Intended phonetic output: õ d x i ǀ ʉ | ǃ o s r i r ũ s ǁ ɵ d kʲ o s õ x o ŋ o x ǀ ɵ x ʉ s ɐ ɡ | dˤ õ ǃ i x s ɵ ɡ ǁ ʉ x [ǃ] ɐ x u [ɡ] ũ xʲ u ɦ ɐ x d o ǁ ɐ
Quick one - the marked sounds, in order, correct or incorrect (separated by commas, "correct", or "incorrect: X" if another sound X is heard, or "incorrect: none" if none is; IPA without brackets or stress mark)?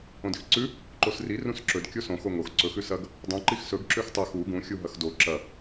incorrect: tˤ, correct